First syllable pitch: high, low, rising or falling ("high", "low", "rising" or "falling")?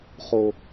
low